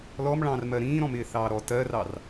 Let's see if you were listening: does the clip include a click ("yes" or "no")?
no